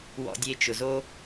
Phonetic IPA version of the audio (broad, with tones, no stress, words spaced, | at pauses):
wɔ̰˧dʲe˧ t͡ʃʊ˩zo˥